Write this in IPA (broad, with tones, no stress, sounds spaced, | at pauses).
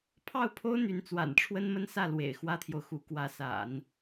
pʰ ɑ˥˩ ʊ̯ pʰ o˥ ʊ̯ n̪ y˧˥ n t͡s w a̰˨˩ n ʈ͡ʂʰ w ə˥ n m ə˥ n s ä˥˩ l w ḛ˨˩ ɪ̯ x w ä˥ t̪ʰ j o˨ ʊ̯ x u˧˥ k w ä˧˥ s a̰˨˩˦ n